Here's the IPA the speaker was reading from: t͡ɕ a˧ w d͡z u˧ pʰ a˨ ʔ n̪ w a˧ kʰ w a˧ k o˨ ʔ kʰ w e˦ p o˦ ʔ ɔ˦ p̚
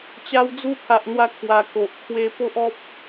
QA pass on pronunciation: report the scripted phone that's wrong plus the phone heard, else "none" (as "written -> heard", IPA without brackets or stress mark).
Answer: none